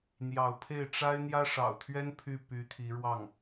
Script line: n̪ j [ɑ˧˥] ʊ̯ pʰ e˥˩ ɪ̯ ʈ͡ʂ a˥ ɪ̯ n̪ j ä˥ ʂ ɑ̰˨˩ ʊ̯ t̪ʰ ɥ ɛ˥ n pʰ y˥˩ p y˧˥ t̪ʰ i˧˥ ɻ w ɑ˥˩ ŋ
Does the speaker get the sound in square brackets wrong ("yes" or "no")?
no